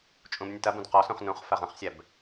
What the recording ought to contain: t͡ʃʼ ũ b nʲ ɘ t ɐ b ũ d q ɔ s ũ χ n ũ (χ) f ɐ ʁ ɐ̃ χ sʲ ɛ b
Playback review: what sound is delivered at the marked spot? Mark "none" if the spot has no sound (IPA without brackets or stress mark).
χ